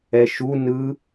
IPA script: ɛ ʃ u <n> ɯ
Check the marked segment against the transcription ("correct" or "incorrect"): correct